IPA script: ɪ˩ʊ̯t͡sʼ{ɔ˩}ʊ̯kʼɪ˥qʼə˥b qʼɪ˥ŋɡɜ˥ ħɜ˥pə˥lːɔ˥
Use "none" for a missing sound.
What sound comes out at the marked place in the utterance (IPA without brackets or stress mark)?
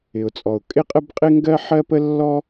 ɔ˩